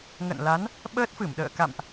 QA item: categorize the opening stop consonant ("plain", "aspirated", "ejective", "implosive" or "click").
implosive